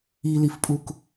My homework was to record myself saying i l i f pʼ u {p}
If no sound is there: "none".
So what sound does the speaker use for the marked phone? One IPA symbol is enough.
k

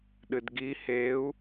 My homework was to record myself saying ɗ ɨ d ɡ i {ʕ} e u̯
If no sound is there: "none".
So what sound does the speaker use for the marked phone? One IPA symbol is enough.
h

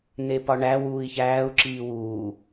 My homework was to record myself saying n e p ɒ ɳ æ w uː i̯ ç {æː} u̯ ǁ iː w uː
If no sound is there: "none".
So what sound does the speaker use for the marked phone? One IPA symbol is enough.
æː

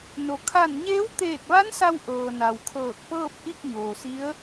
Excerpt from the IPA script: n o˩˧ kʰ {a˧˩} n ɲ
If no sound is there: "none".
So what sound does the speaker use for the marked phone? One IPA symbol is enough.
a˧˩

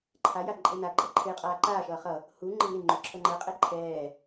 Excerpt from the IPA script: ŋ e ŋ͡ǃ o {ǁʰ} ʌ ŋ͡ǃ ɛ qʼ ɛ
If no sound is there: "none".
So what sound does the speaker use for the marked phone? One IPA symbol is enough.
ǁʰ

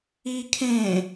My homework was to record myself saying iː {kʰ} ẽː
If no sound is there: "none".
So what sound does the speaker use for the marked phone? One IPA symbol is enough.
kʰ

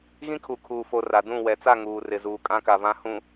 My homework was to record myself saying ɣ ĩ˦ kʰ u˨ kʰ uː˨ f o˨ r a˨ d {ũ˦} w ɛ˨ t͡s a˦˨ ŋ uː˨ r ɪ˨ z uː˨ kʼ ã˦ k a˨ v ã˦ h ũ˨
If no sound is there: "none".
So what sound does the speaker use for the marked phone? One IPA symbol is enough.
ũ˦˨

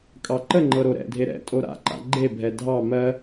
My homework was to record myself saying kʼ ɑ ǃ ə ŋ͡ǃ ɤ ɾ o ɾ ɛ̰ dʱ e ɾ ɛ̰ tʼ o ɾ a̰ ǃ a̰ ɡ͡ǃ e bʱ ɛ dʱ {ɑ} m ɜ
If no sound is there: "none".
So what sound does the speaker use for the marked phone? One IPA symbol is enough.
ɑ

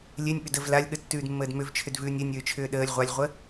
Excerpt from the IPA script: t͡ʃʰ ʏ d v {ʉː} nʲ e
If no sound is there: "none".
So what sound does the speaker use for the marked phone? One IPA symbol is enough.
ʉː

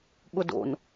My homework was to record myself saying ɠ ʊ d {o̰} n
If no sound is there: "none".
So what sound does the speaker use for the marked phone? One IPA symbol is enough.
o̰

